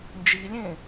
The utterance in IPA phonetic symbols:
nd͡ʒilʲẽ

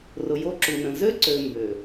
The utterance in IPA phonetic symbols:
rʊ˨jo˦ǁu˨nə̃˨ zø˦ǀø˨ mbø˨

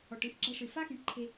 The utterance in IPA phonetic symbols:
ɔ˨ʈɨ˦xɡ͡ǁa˧ʂɨ˨ fa˦xĩ˨˦ʈǃʰe˧

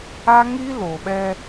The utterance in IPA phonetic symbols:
a˦ŋi˦lo˨ɓɛ˦

